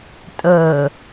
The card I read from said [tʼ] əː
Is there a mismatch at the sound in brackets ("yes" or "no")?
no